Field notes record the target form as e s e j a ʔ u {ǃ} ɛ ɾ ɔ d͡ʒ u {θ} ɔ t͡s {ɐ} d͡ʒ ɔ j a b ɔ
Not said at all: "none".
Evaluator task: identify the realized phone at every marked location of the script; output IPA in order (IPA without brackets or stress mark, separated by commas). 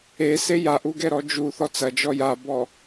ɡ, θ, ɐ